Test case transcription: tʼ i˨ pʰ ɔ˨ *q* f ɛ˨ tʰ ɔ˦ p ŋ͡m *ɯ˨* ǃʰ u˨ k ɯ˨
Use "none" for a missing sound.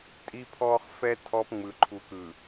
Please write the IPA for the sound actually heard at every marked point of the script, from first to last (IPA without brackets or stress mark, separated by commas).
χ, ɯ˨